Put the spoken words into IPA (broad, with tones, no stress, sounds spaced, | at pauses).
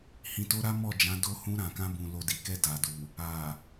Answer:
h ĩ˨ t o˧ ɾ a˦ m ɔ˦˨ d͡ʒ ã˨˦ d o˧ h ũ˧ ɾ ã˨ k ã˧ b ũ˨ l o˨ d i˨ k ɛ˧ d a˨ d u˨ | a˨